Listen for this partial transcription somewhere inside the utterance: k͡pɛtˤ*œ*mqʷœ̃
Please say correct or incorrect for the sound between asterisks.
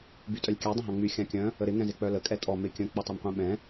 correct